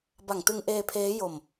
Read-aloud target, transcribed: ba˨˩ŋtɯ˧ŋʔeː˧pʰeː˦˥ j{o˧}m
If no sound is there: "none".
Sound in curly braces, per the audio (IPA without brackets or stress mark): o˧